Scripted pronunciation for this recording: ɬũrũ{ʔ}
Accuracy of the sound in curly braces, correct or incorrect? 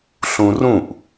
correct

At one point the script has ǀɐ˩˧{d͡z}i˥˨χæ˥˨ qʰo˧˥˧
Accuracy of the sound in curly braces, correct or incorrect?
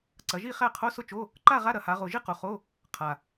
incorrect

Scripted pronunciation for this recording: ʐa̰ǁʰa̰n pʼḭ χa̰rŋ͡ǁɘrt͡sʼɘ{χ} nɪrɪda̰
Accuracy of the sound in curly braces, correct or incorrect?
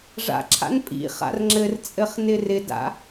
correct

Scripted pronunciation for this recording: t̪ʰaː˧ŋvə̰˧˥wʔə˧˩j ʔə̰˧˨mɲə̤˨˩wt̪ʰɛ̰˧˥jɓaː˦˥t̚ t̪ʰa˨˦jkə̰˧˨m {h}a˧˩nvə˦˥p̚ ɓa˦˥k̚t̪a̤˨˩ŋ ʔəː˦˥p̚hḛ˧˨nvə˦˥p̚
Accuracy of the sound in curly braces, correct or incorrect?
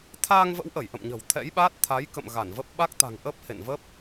incorrect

